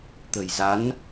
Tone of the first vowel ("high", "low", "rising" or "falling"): low